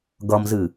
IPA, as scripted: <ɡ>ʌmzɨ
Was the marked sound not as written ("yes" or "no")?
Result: no